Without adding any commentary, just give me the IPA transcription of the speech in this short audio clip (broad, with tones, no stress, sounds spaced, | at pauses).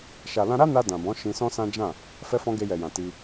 ʃ a˨ l ã˧ ɾ a˦ n a˧ d ã˨ b ɔ̃˨˦ ʃ ĩ˧ s ɔ̃˦ s ã˦ d͡ʒ ã˦˨ | f ɛ˧ f ɔ̃˧ ɡ e˧ j ɛ˨ j ã˨ t i˧